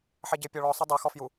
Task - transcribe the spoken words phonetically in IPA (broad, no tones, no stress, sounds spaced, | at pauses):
ħ ɛ ɟ ɪ pʲ ɔ ɭ ɔ sˤ ʊ dˤ i x ɔ f j u